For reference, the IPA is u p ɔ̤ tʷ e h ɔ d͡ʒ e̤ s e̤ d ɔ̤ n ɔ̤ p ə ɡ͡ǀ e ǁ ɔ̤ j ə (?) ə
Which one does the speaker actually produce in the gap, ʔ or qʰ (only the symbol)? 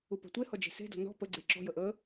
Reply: ʔ